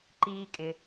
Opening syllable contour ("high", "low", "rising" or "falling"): high